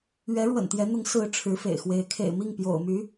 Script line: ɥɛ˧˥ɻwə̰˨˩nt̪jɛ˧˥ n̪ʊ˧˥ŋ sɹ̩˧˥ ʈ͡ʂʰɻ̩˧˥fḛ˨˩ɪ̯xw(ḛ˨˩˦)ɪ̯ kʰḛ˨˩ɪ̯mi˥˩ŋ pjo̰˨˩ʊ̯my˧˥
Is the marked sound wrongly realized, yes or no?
yes